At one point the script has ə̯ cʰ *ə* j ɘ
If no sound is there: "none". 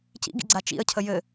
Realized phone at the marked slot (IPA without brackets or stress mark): ə